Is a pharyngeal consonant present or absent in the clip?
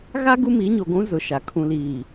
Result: absent